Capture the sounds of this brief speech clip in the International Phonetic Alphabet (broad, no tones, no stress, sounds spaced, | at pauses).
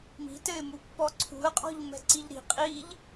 m i̤ t ɘ ɪ̯ m u pː ɔ ǀʰ ṳ ə̯ qʼ ɔ̤ ʎ m ɛ̤ ǀ i ʎ ɾ i̤ qʼ i ʎ